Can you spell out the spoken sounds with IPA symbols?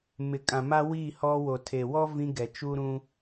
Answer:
m ɪ˨ kʼ ã˨ m a˦ w iː˦˨ h ɔ˦ w o˨ tʰ e˨ w ɔ˦ v ĩ˦ ɡ ɛ˨ t͡ʃ u˦ ɾ ũ˦

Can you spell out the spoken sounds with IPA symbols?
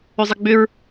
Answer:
ʏ zˤ ɪ ɡ͡b ʏ ɹ

